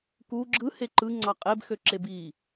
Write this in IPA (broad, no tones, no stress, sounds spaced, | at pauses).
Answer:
k u ɡ͡ǁ ɯ h e ǃ ɯ ŋ͡ǀ ɑ qʼ e b x ø ǁ e b i